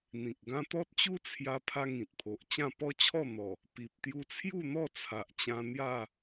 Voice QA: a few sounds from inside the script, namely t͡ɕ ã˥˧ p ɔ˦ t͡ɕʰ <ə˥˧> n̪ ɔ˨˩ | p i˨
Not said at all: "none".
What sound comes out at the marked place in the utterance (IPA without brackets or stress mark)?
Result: ɔ˥˧